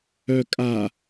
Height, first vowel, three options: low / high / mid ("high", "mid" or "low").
mid